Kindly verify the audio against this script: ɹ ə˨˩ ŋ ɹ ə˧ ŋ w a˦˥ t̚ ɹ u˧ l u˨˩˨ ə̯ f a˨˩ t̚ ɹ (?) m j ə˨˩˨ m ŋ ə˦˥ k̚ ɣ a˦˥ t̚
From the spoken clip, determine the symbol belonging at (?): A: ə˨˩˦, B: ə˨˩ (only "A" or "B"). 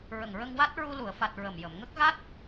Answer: B